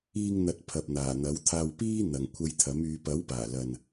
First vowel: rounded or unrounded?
unrounded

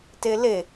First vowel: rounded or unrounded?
unrounded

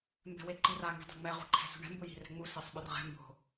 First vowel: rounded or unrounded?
unrounded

